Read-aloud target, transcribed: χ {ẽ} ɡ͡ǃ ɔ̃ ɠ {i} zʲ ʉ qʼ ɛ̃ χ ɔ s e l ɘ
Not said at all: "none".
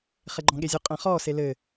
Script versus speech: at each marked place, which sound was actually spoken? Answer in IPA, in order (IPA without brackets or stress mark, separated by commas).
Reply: e, e